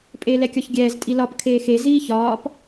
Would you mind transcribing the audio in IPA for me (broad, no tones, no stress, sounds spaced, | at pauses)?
pʼ eː l ɛ kʲ ɒ ç ɡʲ ɛː z tʼ i l ɒ p kʰ eː x e z iː ç ɒː p